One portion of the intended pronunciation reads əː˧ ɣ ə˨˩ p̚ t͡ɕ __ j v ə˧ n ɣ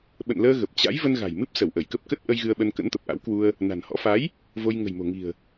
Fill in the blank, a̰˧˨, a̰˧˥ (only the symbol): a̰˧˥